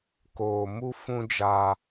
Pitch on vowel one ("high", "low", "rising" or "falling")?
low